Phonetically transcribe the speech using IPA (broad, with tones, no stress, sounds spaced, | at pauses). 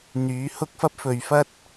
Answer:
n̪ yː˨˥ h ʊ˥ k̚ f ɐ˥ p̚ f ɵ˨ ɥ f ɐ˥ t̚